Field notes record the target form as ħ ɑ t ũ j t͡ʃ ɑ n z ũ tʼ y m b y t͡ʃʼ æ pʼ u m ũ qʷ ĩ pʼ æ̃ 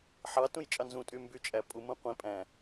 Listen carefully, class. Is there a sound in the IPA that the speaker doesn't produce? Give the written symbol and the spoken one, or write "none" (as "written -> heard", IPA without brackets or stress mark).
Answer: t͡ʃ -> t͡ʃʼ